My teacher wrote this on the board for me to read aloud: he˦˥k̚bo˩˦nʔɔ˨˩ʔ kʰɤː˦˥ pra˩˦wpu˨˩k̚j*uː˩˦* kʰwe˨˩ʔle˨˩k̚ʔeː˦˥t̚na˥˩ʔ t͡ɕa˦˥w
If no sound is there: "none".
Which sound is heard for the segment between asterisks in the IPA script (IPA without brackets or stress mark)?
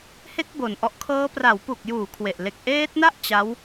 uː˩˦